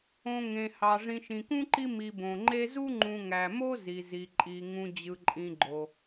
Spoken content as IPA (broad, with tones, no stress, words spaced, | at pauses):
õ˨ ŋẽ˩hɑ˩ ʐĩ˨ʃĩ˩kũ˥ǃi˦ mi˨ bõ˩ŋ͡ǃe˦zu˥ ŋ͡ǃũ˨ŋæ˩mo˥ zi˩zi˩ ǃʼi˩ŋũ˨ d͡ʑɯ˨ǃʼĩ˨ɡ͡ǃo˩